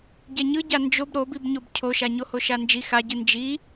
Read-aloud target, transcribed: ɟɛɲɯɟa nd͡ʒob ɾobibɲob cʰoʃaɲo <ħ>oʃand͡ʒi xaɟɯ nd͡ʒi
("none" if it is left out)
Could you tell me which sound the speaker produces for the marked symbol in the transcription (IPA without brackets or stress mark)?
h